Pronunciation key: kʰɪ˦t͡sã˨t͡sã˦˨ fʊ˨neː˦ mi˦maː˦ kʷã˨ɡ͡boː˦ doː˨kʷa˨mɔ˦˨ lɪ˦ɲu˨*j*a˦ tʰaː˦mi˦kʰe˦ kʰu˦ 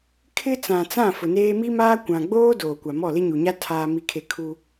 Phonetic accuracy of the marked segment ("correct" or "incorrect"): incorrect